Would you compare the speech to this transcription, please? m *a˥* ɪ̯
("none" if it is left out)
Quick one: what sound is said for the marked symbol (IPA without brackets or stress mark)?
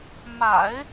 a̰˨˩˦